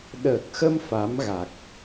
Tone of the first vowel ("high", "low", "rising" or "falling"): low